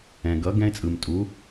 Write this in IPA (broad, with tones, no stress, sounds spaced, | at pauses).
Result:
ɛ̃˩ ɡ ʌ˩˥ ɡ ɛ̃˥ ɪ̯ t͡sʼ ɯ˩ m tʼ u˩˥